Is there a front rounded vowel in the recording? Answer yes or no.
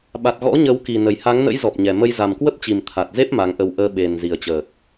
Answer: no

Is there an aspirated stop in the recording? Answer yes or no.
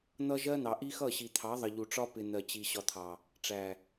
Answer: yes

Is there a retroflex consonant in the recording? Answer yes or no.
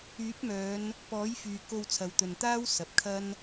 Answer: no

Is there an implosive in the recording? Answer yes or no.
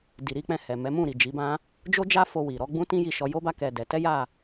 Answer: no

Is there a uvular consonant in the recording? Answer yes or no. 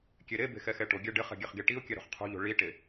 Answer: yes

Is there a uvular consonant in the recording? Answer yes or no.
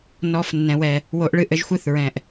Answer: no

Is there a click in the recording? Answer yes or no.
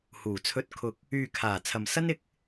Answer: no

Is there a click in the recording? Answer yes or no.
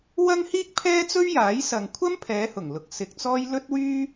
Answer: no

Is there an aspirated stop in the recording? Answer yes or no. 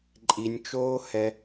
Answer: no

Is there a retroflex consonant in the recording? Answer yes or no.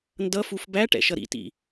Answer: yes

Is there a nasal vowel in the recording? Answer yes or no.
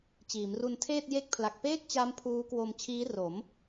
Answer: no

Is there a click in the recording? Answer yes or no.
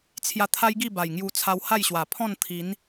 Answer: no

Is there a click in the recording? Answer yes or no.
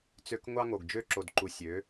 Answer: yes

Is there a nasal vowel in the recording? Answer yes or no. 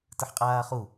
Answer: no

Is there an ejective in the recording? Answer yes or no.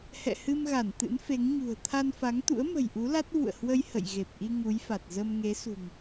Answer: no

